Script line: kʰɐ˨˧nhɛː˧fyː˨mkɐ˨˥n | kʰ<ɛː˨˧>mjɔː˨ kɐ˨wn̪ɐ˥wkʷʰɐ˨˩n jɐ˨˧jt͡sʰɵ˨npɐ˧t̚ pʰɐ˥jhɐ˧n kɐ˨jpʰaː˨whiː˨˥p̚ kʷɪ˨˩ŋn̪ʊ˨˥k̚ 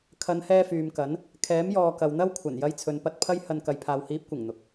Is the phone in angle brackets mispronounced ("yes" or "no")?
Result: yes